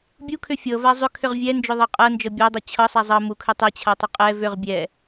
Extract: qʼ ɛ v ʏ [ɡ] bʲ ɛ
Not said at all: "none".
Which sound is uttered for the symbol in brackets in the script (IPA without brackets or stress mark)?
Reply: ʁ